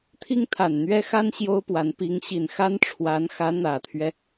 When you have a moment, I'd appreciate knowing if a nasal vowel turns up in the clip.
no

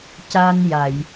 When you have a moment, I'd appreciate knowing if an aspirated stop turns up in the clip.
no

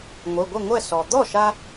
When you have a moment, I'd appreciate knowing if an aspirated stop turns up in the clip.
no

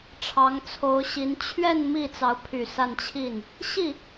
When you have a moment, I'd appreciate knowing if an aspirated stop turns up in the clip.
yes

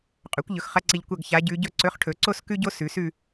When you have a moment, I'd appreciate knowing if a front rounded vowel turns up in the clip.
no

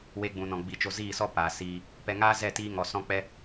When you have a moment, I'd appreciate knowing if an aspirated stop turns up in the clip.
no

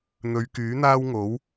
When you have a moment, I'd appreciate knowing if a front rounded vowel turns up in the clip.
yes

